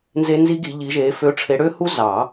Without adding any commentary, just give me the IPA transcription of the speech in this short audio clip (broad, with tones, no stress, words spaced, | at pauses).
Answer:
nze˦˥ nzi˦˥ɡi˨˦ ʎi˨˦ʒe˨˦ fø˨˦ʈ͡ʂʰe˨˦ɽø˦˥hu˦˥ zɑ˨˩˦